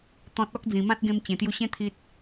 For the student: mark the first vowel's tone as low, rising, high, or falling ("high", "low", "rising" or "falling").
low